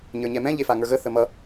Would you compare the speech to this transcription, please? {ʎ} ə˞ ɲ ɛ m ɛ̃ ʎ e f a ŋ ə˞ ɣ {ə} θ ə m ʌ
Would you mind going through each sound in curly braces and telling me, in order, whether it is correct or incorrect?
incorrect: ɲ, correct

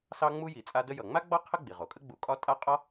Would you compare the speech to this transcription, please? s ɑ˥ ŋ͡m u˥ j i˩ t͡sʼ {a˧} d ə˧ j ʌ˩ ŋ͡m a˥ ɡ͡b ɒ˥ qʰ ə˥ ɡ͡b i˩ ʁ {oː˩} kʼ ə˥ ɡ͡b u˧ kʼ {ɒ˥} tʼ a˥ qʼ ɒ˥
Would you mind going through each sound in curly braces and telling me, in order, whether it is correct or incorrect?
correct, incorrect: o˩, correct

